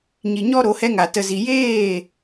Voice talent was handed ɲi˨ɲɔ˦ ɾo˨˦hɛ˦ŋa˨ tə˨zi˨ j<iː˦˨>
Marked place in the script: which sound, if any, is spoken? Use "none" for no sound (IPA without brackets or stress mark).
eː˦˨